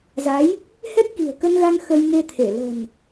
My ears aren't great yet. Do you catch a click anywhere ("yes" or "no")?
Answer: no